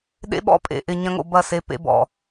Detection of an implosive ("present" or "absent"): present